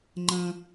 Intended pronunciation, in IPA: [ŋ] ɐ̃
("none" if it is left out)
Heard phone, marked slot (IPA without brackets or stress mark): ŋ͡ǃ